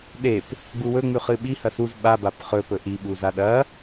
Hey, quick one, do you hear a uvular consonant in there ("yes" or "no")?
yes